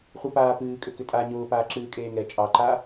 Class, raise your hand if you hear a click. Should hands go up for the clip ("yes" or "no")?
yes